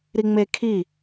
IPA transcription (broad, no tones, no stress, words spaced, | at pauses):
ɾiŋ͡mekʰi